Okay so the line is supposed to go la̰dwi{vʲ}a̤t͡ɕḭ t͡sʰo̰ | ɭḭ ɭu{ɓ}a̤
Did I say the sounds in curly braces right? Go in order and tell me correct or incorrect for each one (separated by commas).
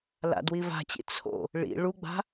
incorrect, incorrect